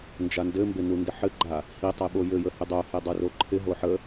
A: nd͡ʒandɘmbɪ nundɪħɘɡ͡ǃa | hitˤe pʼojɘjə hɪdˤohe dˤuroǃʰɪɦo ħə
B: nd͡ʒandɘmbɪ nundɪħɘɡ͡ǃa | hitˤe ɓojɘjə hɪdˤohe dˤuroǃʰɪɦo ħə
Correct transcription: B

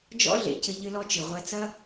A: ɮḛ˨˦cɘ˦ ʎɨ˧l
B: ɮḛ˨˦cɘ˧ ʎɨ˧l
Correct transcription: B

